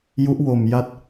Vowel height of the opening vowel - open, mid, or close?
close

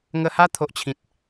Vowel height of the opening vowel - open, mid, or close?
mid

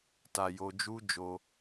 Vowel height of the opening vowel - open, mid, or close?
open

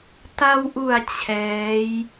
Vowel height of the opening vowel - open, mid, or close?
open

